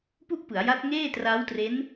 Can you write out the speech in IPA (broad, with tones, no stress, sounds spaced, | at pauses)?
p u˥˩ ʔ p ɯ˩˦ a̯ j a˦˥ t̚ ŋ eː˥˩ t r a˦˥ w t r e˦˥ n